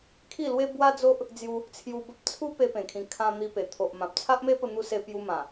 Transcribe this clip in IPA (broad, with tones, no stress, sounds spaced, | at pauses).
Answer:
kʰ i˥˧ l w e˦ b w a˦ d͡z o˦ ʔ | d͡z j u˧ | t͡sʰ j u˧ b ə˦ p̚ t͡sʰ u˦ p e˧ p ẽ˨˩ kʰ ĩ˨˩ kʰ ã˧ n̪ i˧ p e˨˩ t̪ʰ o˨ ʔ m ã˨ p̚ t͡sʰ a˦ ʔ m e˦ p ə˧ n̪ u˧ s e˧ p j u˧ m ã˨˩